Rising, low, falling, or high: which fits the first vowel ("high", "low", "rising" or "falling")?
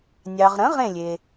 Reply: low